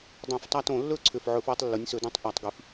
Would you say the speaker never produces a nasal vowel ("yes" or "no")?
no